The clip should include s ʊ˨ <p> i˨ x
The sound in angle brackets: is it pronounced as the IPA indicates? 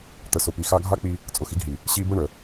yes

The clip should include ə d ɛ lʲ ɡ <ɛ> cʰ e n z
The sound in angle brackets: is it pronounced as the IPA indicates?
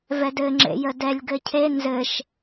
no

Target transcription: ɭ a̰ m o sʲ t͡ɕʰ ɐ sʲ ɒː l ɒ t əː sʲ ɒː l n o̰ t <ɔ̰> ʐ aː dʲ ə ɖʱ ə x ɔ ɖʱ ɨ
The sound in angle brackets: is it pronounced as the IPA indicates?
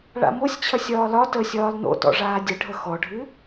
yes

